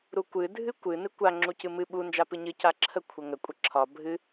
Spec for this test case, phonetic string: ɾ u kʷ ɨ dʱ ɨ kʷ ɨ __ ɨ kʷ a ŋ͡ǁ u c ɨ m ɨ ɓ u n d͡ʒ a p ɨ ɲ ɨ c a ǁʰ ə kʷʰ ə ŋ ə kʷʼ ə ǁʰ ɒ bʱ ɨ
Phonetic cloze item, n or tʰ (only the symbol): n